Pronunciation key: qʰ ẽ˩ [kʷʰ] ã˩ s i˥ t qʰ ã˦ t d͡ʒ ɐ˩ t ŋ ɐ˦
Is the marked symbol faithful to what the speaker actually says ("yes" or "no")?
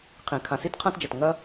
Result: no